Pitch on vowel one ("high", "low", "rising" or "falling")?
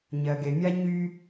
low